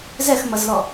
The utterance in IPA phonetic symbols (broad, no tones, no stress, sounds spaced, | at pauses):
z ɛ x m ʌ z l ɔ